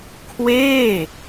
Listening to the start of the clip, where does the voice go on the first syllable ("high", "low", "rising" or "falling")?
falling